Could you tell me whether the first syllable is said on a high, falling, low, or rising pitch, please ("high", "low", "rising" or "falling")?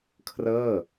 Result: falling